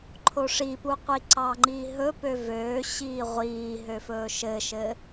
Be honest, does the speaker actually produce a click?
yes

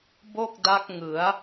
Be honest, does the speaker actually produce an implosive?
no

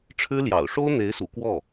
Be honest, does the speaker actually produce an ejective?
no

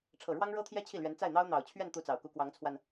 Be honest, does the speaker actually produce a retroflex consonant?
yes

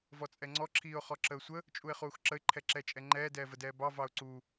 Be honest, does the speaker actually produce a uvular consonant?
yes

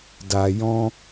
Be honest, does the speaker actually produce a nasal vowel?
yes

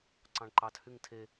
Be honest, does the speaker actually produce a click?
yes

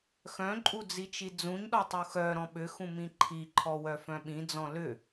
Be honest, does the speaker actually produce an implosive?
yes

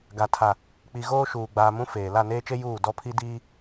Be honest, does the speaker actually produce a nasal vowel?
yes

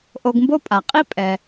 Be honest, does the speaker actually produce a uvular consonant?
yes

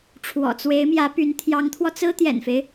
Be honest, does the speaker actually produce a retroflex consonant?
yes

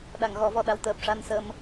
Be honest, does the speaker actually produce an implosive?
yes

